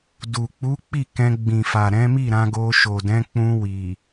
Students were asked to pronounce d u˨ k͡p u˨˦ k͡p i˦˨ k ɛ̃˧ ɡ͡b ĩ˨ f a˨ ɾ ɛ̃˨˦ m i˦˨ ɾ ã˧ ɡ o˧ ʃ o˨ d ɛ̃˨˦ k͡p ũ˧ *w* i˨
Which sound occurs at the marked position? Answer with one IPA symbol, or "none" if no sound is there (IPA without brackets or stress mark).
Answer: w